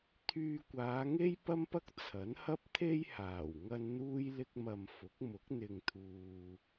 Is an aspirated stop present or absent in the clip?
present